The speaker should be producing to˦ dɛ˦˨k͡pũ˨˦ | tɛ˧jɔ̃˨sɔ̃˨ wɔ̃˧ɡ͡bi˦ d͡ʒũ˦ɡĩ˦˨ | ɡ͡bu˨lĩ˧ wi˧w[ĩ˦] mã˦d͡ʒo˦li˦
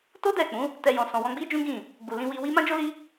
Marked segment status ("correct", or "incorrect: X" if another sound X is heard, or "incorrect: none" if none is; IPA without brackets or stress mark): incorrect: i˦